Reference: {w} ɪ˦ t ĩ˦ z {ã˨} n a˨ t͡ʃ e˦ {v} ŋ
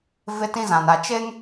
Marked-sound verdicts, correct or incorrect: incorrect, correct, incorrect

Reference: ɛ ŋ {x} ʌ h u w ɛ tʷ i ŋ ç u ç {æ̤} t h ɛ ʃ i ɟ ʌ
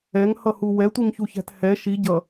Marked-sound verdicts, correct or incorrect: incorrect, correct

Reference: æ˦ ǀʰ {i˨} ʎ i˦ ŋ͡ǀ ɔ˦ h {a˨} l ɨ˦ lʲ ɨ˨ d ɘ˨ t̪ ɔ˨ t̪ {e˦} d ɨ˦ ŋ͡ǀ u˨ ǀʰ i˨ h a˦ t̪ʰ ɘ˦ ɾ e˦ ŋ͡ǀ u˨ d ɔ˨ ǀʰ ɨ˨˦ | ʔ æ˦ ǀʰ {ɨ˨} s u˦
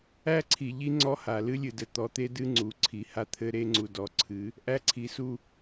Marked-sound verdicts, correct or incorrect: correct, correct, correct, incorrect

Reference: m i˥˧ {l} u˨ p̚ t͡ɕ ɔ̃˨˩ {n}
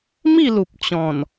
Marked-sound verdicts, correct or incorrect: correct, correct

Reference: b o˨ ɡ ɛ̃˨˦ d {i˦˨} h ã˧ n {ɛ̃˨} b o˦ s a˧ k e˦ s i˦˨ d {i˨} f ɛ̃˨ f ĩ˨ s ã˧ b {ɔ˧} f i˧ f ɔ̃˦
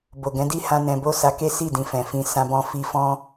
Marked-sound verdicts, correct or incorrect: correct, incorrect, incorrect, incorrect

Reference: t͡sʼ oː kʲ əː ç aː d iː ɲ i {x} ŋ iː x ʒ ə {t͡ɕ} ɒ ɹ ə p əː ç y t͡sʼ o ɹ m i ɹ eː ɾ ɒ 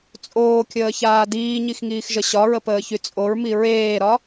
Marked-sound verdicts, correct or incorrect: correct, incorrect

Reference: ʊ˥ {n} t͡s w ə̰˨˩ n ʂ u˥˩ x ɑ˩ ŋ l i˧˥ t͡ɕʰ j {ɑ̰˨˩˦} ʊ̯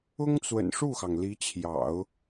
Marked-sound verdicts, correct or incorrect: incorrect, correct

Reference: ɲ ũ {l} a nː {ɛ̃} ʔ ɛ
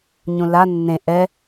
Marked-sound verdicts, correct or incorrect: correct, incorrect

